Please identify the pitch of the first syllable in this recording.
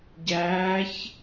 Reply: rising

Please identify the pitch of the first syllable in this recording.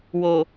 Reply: low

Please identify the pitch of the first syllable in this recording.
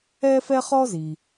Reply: high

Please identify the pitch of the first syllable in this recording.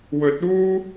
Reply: rising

